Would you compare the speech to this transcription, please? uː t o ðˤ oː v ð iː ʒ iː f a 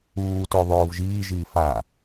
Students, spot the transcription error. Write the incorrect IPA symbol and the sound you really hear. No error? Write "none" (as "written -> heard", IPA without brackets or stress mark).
ð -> ʒ